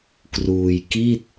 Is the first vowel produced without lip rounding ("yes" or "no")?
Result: no